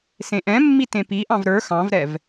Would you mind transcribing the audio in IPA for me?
sẽʔɛ̃mːi tẽpiʔɑ̃v ɾə˞ xɑ̃vɾɛv

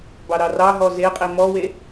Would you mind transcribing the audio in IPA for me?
bɑɾɑrɑɦɔ zeqʼi mɔwe

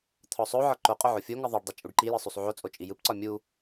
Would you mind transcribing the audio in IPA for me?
t̪ʰɔsˤoʕɒ ǃoqʼo ʕofʲoŋɯ ðˤoɖdˤi t͡ʃʼuɖǃijɯ sˤusˤʕot͡sʼo t͡ʃʼijɯpǀɒ mʲu

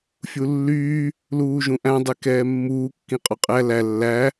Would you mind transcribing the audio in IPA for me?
fʲulːyː | luːʒũʔæ̃ dˤekɛːmːuː kːĩqʼɔqʼæ læ lːæ

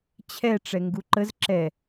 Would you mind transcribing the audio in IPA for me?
t͡ɕʰɛʈ͡ʂɛ ŋɡuǃəz ǁɛ

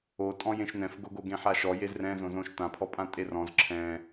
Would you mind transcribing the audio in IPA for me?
otʼɔ̃ jẽʃnɛ̃fɡoɡo ɡẽħaʃɔ jezrɛ̃zõzõʃ tãpʰɔpʼã tʼerɔ̃z ǁʰɛ̃

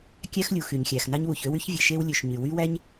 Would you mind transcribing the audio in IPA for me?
kʲæ˥xlʲu˩ xy˩ɲxʲæ˩xnɑ˥ɲwu˩ç ø˥wy˥ç vʲe˩ʃe˥wlʲø˩ʃ ɲy˩ wy˥wæ˥ɲ

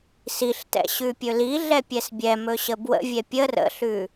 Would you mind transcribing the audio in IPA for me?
siɬtɛ̰ ɕʉpʲɵliɮɛ pʲɛsbʲɛmɵ ɕəbwə̰vʲɛ pʲər ə̰ɬʉ

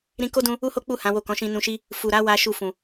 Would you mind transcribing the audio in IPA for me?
ɾĩ˧ko˦dũ˧ | u˦ho˦k͡pu˦˨ hã˨˦wo˦˨ kɔ̃˨˦ʃĩ˧nũ˧ʃi˦ | fu˨ɾa˨˦ wa˦ʃu˦˨ fũ˨

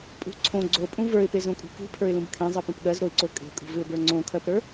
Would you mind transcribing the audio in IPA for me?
pʼṳ ǀʰõ ɡ͡ǀopʼũ və˞ɪ̯pezõkʼṳ kṳpʰə˞ɪ̯lũb kʰẽzˤɜpõp ɠɜzɾoɪ̯ǀo kʼe̤kʼṳvɪʊ̯bə˞ ŋ͡ǀõkʰɜpɾə˞

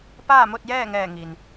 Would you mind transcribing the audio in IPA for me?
paː˥˨mo˥˨t̚jɛː˥˨ŋɛː˧˩ ŋi˩n

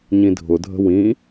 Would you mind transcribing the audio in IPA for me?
ɲĩdʱʊdʱə̤ wĩ

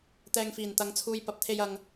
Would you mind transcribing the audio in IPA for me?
t̪ɛː˨ŋfiː˨˩n t̪ɐ˨˧ŋ t͡sʰuː˨j pɐ˨˥p̚t̪ʰe˧j ɐ˨ŋ

